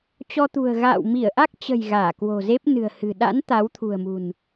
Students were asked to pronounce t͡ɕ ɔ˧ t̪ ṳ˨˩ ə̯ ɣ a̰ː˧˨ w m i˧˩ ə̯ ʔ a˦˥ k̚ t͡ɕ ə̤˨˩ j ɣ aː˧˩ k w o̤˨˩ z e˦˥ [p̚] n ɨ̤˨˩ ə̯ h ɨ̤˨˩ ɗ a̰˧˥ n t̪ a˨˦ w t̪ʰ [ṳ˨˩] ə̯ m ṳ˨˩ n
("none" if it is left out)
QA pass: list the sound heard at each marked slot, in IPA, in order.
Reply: p̚, ṳ˨˩

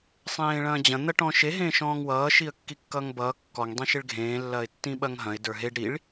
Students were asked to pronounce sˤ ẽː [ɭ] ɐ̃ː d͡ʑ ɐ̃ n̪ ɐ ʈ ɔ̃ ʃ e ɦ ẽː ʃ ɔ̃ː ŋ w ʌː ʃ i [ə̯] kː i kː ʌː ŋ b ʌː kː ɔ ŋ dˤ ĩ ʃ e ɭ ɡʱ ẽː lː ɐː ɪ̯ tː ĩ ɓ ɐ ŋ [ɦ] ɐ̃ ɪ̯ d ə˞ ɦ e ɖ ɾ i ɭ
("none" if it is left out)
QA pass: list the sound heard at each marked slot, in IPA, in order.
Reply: ɭ, ə̯, ɦ

